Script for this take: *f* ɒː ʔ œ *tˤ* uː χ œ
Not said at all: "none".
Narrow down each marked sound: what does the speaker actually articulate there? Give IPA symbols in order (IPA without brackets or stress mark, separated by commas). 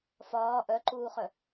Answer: f, ǃ